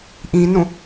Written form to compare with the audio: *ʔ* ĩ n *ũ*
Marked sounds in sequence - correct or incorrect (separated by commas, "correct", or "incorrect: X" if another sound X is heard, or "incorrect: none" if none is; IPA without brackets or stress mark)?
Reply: correct, correct